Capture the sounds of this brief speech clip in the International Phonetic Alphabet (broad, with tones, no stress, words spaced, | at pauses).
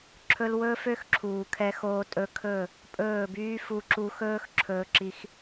ǁʰɵ˧l wɵː˦fø˦xǁʰuː˨kʰɛ˧ xoː˧tʼɵ˧kʰɵː˦˨ | pʼɵː˦˨byː˦ fu˧ǁu˧xɵː˦x ǁʰɵː˧ǁi˧x